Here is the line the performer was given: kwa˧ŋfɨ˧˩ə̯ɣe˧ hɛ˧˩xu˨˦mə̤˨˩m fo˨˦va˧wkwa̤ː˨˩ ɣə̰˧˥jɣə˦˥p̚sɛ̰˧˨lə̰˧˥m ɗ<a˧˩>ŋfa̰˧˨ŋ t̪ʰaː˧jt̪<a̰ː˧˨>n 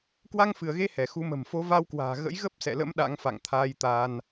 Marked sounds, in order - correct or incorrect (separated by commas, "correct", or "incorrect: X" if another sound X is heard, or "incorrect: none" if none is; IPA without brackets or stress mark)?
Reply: incorrect: a̰˧˥, incorrect: aː˧